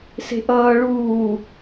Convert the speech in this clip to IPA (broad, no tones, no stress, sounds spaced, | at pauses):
s e̤ ʔ ʌː ɭ uː